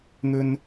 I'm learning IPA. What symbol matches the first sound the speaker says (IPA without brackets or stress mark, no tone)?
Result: n̪